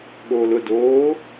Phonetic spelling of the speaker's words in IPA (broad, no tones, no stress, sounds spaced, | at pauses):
ɠ oː l ʊ d oː